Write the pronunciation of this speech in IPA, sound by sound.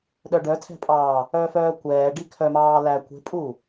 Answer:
ɗ œ ɖ œ tʰ ɛ̤ pʼ ɑː | œ f œː kʷ ɛː ɖ i kʰ œ m ɑː l æ kʷ e̤ pʼ u

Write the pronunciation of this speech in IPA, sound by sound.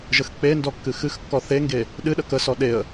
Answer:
ʒ ə x k͡p e n d ɔ kː ɨ x ɨ x kː ɔ θ e ŋ ɡ e | ɗ ɨ ɗ ə k ə s ɔ ɗ e ə̯

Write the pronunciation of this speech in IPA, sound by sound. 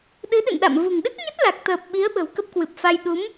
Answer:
ɗ ɨ˨˦ ɗ ɨ̰˧˨ n ɗ a̰˧˨ m v ṳ˨˩ ŋ ɗ ɨ˦˥ k̚ ɲ ə˦˥ t̚ l a˨˩ k̚ t̪ əː˨˩ p̚ ɓ i˨˦ ə̯ ɓ ə̤˨˩ w k ə˦˥ p̚ k w ɨ˨˩ p̚ f a˧ j ɗ u˨˦ m

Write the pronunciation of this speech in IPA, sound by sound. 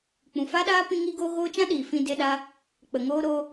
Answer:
k͡p ũ˨ f a˦ ɗ aː˦ p ĩ˦ ŋ i˦ ɡ oː˦ ɣ oː˦ t͡ʃ ã˦ ɗ iː˨ f ĩ˧ d e˧ ɗ a˧ | k͡p ə˨ ŋ oː˧ ɾ o˧

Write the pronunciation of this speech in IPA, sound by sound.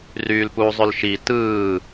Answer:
r yː l p u zˤ ø l ʃ i t ɯː

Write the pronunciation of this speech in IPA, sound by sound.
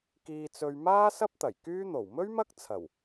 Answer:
k iː˧ t͡s ɵ˧ ɥ m aː˥ s ɐ˥ p̚ t̪ ɐ˨˩ j k yː˥ n̪ o˨˩ w m ɵ˥ ɥ m ɐ˥ k̚ t͡sʰ ɐ˨˩ w

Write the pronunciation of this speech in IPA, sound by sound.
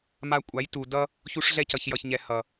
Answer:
m a˧ kʷʼ a˨˦ j t u˨ d ʌ˦ | ç u˧ ʂ ɮ ɛ˧ c ʌ˨ ç j ʌ˨ ç ɲ ɛ˨ h ʌ˨

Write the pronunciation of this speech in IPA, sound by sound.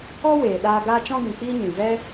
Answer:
ɔ˦ w eː˨ ɗ aː˧ ɡ aː˦ t͡ʃ ɔ̃˦ ɡ ĩ˨ k͡p iː˦ ɲ ĩ˨ v ɛ˦

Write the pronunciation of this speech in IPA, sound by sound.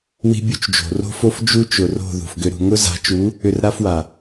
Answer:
w i̤˦ bʲ u˦ t͡ʃ d͡ʒ o̤˨ r o̤˦ f o˦ f d͡ʒ u˦ t͡ʃ ʊ˨ r o̤˦˨ ð ṳ˨ f ɡ ʏ˧ ɾ ṳ˧ ŋ ʊ˦ z a̤˨˦ t͡ʃ u˨˦ | ʏ˧ r ɾ a˦ f w a˨

